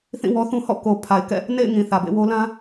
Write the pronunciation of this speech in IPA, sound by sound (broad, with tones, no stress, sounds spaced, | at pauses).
θ ĩ˦˨ w ɔ˦ θ ũ˦ h ɔ̰˦˨ k o˨ pʰ a˨ ɪ̯ k ɛ̰˦˨ | n ḛ˦˨ ɪ̯ ŋ ĩ˨ θ ä˨ b ḛ˦˨ w o˦ l ã˦